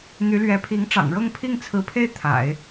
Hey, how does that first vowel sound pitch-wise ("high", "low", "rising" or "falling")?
rising